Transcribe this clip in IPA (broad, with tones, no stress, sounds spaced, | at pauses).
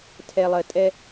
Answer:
tʰ ɛ˨ lˠ ɜ˨ tʼ ɛ˦